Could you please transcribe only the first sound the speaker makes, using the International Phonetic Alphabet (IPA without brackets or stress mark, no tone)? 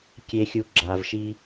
kʲ